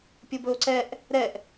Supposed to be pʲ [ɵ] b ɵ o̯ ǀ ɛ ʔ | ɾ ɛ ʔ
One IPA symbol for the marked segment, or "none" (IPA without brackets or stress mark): o